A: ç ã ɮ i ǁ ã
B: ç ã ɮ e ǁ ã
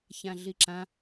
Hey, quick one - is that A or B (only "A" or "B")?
A